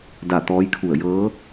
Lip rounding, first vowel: unrounded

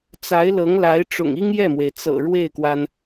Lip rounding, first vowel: unrounded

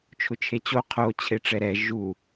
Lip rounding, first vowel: rounded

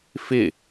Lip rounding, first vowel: unrounded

